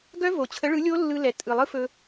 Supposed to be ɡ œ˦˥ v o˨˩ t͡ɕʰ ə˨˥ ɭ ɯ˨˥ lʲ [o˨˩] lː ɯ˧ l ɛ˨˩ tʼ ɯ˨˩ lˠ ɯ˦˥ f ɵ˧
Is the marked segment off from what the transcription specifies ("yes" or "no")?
yes